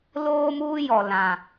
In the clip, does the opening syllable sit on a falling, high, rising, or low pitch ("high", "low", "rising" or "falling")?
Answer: high